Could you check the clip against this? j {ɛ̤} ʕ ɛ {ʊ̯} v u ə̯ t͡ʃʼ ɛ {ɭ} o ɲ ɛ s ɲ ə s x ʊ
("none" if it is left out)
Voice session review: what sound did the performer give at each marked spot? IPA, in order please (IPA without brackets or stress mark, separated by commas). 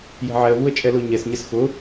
ɛ̤, ə̯, l